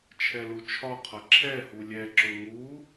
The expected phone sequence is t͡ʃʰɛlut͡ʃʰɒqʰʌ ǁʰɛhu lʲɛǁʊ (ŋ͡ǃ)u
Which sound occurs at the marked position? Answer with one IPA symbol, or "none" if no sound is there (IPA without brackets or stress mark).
ŋ